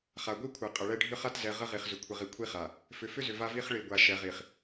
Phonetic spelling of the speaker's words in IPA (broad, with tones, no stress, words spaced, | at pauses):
χa˨ɡʷi˦kʷʰɛ˨ qʼə˨ɭɛ˦ ɖʱʏ˦χa˦tzɛ˨ ʁə˦ʁi˨χzʏ˨ kʷʰə˨ʁi˨kʷʰi˦χa˨ | fʏ˨fʏ˦zʏ˨ va˦vi˦χ ɭi˨ɡʷa˨ʃɛ˨ʁi˨χ